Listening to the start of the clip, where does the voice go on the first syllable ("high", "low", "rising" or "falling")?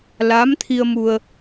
rising